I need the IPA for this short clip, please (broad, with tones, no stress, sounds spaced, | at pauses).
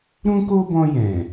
ɾ ũ˦ k o˦ b ɔ̃˧ j ɛ̃˨